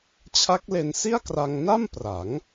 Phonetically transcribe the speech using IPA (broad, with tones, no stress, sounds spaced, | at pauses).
t͡ɕʰ a˦˥ k̚ l e˧ n s i˥˩ a̯ k r a˧ ŋ n a˥˩ m p r a˩˦ ŋ